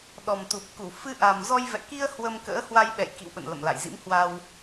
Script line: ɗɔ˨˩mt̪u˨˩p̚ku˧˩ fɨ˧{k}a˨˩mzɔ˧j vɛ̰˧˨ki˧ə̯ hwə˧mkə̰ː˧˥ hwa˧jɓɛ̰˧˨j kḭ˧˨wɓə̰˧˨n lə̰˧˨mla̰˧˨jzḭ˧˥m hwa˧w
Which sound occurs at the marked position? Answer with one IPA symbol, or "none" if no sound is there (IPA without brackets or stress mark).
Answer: ʔ